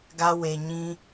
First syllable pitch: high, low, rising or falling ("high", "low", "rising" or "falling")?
high